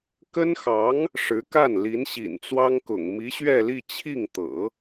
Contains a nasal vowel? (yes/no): no